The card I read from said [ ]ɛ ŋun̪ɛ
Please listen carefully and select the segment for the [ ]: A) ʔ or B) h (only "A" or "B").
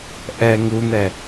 A